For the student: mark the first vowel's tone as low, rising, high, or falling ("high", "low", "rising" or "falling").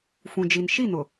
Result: low